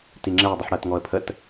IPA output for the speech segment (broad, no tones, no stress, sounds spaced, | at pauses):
t i ŋ͡ǁ ɛ dˤ u ħ ɽ ɜ t ŋ ɔ ə̯ pʰ ə t